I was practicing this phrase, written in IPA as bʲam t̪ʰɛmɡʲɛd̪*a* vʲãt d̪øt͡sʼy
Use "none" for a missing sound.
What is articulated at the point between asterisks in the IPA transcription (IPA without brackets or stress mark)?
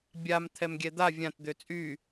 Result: a